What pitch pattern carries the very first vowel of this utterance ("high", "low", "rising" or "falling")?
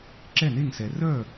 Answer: falling